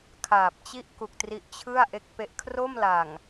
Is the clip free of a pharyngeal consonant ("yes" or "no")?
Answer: yes